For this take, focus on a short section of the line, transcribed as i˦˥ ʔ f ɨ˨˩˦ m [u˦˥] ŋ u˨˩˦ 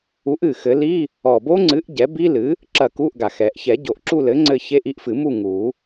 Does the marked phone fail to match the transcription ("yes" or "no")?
yes